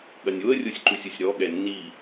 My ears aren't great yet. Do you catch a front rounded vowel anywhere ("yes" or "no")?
no